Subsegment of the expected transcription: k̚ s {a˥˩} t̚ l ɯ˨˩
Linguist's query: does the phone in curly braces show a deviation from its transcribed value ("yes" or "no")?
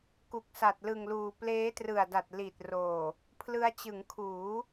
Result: yes